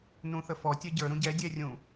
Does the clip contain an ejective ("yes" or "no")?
no